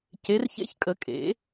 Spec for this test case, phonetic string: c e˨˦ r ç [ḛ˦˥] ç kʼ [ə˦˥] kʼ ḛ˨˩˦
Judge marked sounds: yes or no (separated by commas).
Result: yes, no